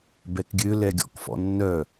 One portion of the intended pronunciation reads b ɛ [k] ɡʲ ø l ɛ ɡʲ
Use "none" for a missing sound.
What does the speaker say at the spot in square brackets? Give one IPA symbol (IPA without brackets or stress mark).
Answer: k